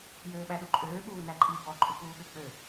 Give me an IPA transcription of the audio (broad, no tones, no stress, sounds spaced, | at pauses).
j øː ɓ æ ɗ u ǃʼ øː ɓ uː n æ ǃʼ i b ɔ ǃʼ u k uː ɠ ø k͡p ø